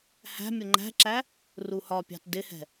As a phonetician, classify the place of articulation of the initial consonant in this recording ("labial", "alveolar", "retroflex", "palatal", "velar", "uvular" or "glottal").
glottal